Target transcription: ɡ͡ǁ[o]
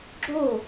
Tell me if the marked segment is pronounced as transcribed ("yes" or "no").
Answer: yes